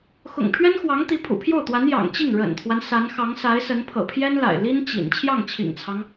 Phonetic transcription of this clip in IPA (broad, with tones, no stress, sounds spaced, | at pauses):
x ʊ̰˨˩ ŋ pʰ ɥ ɛ˥ n x w ɑ˧˥ ŋ t̪ i˧˥ pʰ ṵ˨˩ pʰ j o˥˩ ʊ̯ t̪ w a˧˥ n j ɑ̰˨˩ ŋ t͡ɕ i˥˩ ŋ ɻ ə̰˨˩ n t̪ʰ w a˦ n s a˧˥ n x ɑ˧˥ ŋ s a˧˥ ɪ̯ s ə˧˥ n pʰ ɤ̰˨˩ pʰ j ɛ˥ n l a̰˨˩ ɪ̯ l i˥ n t͡ɕ ḭ˨˩ n t͡ɕʰ j ɑ˥˩ ŋ t͡ɕʰ ḭ˨˩ ŋ t͡sʰ ɑ˦ ŋ